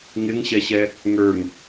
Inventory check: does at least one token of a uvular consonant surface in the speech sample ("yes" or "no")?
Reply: no